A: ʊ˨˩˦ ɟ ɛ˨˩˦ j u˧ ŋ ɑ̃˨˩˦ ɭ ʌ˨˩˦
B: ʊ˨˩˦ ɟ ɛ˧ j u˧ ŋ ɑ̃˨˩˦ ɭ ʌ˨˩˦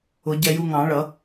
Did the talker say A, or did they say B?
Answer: B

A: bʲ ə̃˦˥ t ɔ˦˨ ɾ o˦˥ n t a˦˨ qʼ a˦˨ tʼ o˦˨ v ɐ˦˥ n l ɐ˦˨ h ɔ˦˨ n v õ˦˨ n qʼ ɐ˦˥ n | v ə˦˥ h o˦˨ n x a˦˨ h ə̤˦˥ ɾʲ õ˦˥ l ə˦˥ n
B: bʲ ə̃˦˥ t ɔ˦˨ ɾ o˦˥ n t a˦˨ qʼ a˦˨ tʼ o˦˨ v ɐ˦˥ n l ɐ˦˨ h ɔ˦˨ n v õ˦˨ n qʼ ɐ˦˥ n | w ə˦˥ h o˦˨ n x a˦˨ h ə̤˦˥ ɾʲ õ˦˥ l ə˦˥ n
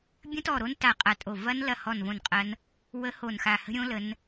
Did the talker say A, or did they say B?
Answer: B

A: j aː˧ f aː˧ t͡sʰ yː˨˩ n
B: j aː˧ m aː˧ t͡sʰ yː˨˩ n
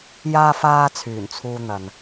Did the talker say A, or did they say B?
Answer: A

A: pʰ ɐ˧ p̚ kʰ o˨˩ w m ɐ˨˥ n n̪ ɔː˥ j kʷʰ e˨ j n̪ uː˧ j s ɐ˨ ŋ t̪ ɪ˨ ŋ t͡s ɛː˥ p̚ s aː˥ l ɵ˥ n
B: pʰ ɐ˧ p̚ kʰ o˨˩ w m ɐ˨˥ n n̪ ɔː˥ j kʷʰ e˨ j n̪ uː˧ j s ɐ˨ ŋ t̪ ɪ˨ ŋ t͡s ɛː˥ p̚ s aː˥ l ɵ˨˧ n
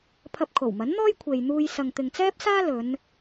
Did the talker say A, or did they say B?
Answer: B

